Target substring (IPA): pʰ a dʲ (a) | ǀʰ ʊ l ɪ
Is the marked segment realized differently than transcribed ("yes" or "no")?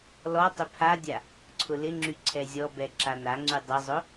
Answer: no